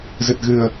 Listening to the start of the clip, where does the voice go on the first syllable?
low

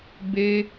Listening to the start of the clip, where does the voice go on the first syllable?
high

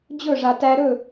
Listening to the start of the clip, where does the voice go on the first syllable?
falling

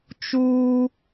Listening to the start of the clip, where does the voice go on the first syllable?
high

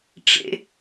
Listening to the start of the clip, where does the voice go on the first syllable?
high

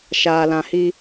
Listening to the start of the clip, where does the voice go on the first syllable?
low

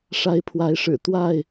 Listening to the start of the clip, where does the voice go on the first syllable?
rising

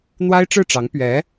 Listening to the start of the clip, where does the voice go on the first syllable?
high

